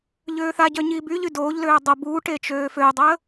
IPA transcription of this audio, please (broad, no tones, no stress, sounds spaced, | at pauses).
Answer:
ʎ øː θ a ɟ œ ɲ iː b y ʎ y d oː ʎ l øː dˤ ə b uː ʈ e t͡ʃ øː f ø dˤ əː